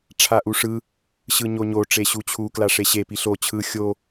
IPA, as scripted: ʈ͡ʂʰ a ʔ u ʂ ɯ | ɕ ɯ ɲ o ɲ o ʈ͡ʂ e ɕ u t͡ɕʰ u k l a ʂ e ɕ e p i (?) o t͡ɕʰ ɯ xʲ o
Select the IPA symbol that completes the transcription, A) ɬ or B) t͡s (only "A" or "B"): A